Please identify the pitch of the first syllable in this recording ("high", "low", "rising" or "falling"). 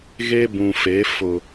high